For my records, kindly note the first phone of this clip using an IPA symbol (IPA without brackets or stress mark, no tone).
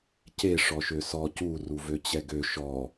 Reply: c